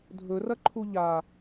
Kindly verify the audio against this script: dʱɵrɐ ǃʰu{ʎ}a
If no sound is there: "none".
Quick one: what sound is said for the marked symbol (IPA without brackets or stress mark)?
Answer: ʎ